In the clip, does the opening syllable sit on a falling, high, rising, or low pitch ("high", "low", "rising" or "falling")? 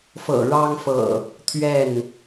low